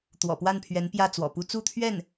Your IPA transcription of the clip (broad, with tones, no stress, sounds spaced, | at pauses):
t̪ w ɔ̰˨˩ p w a˥˩ n pʰ ɥ ɛ˧˥ n p j ä˥˩ t͡s w ɔ̰˨˩ p u˧˥ t͡s u˥˧ t̪ʰ ɥ ɛ˥˩ n